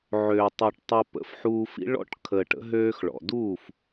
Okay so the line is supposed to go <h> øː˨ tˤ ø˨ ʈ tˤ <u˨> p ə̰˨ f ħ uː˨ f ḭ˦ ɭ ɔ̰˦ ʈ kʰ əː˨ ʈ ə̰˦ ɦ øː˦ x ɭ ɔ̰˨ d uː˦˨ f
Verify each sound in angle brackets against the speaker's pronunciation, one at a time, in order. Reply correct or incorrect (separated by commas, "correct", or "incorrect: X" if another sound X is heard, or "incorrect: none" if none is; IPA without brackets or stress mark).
incorrect: ʕ, incorrect: o˨